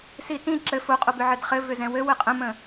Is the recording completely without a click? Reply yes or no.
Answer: no